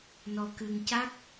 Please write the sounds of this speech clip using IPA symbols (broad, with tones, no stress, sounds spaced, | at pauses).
n ɔ˧ k ɨ˧ ŋ c a˦˥ k̚